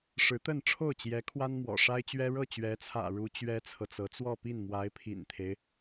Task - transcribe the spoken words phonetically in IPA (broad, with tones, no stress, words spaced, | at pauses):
ʂɻ̩˧˥t̪ə˥˧nʈ͡ʂʰo˥˩ʊ̯ t͡ɕjɛ˧˥ kʰwa˥nmwɔ̰˨˩ʂa˥ɪ̯t͡ɕɥɛ˥ ɻɤ˥˩t͡ɕɥɛ˧˥t͡sʰä̰˨˩ ɻu˥ t͡ɕɥɛ˥t͡sʰɤ˨t͡sɤ˧˥ t͡swɔ˥˧pi˥˩nmwa˧˥ɪ̯ pʰḭ˨˩nt̪ʰe˦ɪ̯